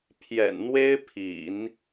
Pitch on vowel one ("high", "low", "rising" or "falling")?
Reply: low